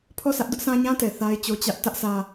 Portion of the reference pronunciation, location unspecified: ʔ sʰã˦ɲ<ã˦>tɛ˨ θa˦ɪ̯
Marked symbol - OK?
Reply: yes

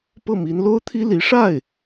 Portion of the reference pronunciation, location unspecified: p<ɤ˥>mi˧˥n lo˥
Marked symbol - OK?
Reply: no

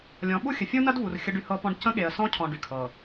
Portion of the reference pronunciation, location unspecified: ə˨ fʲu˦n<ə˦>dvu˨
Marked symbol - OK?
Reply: no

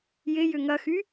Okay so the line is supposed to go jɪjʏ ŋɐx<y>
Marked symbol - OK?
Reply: yes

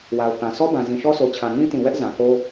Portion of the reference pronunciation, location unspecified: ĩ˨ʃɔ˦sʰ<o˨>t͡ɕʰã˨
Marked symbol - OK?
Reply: yes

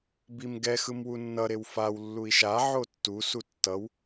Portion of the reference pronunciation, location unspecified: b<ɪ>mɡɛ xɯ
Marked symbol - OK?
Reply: no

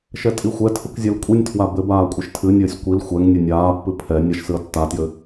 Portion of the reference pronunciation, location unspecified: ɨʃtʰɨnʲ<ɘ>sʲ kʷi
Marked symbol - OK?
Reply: no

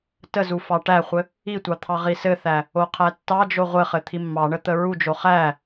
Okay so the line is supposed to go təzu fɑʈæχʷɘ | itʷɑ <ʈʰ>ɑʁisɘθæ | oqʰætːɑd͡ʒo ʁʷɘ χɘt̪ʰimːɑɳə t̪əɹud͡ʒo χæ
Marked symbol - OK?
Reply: no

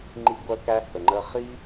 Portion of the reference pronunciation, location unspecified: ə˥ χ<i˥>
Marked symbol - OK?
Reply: yes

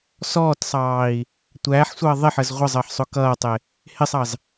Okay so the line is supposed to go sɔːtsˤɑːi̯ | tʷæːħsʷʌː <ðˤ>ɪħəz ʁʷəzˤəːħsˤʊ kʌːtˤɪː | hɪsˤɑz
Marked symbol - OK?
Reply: yes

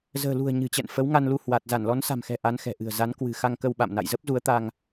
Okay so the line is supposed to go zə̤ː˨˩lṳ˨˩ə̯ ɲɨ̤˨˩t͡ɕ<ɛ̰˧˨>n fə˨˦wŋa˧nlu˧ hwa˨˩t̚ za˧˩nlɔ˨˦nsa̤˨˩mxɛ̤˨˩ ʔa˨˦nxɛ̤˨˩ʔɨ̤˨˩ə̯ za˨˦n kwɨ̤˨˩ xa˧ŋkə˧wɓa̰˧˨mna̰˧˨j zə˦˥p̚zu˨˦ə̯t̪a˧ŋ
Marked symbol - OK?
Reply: yes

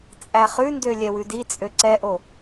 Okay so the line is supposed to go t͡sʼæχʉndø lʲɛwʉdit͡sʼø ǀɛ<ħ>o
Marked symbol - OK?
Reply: no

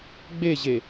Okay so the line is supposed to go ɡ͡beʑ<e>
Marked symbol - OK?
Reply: yes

